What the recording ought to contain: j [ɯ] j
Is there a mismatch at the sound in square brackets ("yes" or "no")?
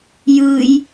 no